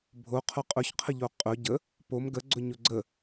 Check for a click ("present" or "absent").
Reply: present